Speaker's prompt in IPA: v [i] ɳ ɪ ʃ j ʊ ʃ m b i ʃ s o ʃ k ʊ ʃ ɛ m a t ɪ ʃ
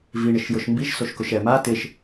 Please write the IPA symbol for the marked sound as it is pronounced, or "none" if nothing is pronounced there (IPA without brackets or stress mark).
i